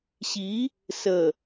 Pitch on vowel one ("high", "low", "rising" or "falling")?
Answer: rising